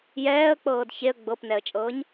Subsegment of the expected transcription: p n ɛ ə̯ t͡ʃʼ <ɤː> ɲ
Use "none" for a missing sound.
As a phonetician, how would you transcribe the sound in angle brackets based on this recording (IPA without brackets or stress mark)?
ɤː